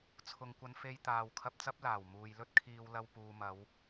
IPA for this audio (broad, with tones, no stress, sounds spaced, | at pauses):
t͡sʰ ʊ˨ ŋ kʷ ɐ˨ n f e˧ j t̪ aː˨ w kʰ ɐ˧ p̚ t͡s ɐ˥ p̚ l aː˨˩ w m uː˨ j l ɵ˥ t̚ kʰ iː˧ w l ɐ˧ w p uː˨ m ɐ˨˧ w